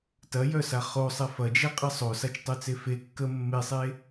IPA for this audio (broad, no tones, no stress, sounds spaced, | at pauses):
t ɐ j œ s a χ o sˤ ɛ f ɐ d͡ʒ ɛ qʼ ɐ sˤ o s a t͡ʃ tˤ œ t͡s e f e kː ə mː e sˤ e